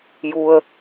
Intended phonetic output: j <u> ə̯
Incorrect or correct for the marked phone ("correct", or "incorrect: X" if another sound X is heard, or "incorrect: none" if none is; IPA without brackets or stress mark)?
correct